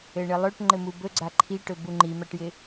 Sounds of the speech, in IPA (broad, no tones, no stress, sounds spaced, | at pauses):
ɘ ɳ ɘ lˠ ɵ ʈ ŋ͡ǃ ɘ m u b ɵ ɡ͡ǀ a ǃʰ i ʈ ɵ b u ŋ͡ǃ i m a ʈ j ɪ